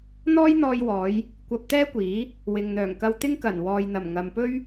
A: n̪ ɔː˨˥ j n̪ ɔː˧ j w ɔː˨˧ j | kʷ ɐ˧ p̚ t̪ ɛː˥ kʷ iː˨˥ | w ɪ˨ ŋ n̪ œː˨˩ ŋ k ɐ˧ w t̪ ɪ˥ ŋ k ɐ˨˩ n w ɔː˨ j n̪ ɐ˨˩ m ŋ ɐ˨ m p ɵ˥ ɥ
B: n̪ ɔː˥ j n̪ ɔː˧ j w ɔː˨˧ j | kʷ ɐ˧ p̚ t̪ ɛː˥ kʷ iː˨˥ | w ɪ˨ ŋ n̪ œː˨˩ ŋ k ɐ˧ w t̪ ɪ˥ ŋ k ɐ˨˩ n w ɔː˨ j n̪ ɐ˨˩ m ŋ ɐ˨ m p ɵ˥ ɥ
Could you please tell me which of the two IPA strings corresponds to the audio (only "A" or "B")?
B